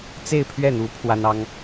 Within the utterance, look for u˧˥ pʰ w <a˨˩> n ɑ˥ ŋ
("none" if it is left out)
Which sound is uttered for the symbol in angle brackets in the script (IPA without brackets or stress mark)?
a˥